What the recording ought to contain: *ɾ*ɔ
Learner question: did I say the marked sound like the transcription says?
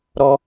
yes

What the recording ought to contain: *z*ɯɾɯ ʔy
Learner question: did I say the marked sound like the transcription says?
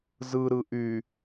yes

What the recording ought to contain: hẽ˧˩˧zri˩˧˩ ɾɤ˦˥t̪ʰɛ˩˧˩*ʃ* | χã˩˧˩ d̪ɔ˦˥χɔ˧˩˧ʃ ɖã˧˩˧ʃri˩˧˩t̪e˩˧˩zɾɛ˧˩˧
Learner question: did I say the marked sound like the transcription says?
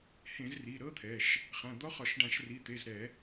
yes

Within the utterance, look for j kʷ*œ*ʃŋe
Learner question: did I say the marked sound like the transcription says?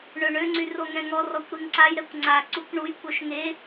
yes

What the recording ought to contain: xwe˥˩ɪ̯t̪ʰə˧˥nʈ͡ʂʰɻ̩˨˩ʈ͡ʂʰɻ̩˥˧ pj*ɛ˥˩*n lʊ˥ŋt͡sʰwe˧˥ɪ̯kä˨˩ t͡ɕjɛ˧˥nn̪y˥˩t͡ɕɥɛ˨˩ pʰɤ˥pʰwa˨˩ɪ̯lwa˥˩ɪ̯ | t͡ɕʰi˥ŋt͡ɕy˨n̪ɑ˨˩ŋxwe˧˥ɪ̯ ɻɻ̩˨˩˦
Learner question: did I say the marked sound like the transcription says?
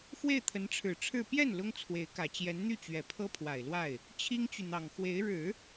yes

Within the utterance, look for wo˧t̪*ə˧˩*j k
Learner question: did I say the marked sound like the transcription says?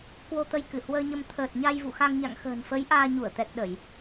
no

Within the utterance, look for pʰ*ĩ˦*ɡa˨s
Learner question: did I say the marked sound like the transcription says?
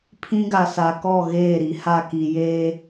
yes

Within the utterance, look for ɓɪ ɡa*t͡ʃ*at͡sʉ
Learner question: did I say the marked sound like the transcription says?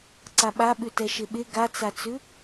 no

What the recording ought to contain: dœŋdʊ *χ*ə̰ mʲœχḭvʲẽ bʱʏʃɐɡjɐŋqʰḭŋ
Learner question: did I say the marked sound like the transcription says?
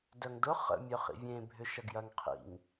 yes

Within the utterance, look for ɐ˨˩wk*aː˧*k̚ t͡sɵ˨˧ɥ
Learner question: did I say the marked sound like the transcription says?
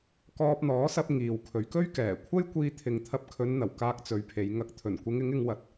yes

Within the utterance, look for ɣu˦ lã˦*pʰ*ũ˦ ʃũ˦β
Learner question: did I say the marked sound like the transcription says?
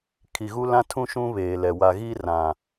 no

